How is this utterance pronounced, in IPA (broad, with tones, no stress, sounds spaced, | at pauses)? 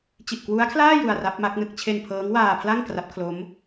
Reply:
t͡ɕ i˨˩ ʔ k w u˦˥ a̯ kʰ l aː˥˩ j u˧ a̯ r a˦˥ p̚ m a˦˥ k̚ n ɯ˥˩ k̚ t͡ɕʰ e˧ n pʰ ɤː˦˥ ŋ w aː˧ pʰ l a˥˩ ŋ k r a˦˥ p̚ kʰ l o˦˥ m